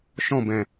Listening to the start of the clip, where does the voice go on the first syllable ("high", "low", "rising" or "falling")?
falling